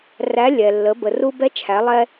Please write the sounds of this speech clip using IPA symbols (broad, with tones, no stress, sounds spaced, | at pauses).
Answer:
r æ˧˥ lʲ ɛ˩ lː ə˩˧ b ə˩ r u˧ b ɛ˧˥ t͡ʃʰ æ˩˧ lˠ ɛ˧